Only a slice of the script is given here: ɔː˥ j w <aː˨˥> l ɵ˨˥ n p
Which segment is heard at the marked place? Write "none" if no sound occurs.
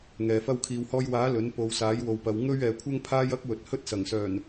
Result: aː˨˥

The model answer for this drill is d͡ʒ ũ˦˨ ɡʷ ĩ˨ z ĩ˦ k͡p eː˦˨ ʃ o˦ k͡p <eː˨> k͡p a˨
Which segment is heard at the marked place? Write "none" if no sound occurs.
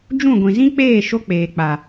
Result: eː˨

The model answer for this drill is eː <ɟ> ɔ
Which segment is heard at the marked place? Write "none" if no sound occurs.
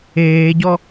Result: ɟ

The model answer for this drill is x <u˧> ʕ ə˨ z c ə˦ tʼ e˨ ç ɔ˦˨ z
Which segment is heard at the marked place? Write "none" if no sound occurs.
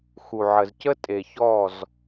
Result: u˨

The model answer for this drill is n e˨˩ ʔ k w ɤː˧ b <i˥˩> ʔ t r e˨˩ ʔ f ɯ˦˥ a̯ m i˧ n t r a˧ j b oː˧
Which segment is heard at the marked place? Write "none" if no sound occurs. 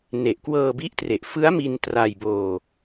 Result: i˦˥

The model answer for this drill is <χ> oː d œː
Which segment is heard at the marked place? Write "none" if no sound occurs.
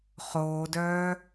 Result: χ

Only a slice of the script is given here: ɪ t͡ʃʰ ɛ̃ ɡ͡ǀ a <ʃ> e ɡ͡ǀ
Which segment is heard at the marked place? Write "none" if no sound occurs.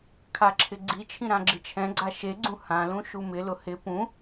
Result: ʃ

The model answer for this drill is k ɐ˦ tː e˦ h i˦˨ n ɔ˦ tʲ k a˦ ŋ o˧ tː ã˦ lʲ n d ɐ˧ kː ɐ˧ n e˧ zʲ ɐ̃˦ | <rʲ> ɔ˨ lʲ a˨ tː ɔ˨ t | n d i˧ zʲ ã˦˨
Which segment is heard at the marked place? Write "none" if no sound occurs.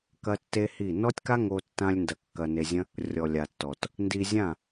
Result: rʲ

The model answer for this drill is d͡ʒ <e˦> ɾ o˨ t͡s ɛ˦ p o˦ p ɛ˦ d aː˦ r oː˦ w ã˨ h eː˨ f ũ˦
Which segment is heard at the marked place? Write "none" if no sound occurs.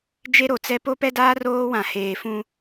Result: e˦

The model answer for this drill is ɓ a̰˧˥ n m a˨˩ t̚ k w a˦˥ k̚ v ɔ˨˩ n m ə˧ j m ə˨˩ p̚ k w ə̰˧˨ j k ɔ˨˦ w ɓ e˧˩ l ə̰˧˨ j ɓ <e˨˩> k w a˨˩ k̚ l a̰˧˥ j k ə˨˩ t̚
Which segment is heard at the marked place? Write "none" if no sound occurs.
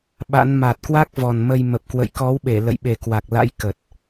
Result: e˨˩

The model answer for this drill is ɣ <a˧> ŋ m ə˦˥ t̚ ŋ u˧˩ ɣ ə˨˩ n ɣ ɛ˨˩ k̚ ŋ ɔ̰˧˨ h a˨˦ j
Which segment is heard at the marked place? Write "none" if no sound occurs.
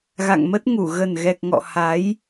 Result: a̰˧˨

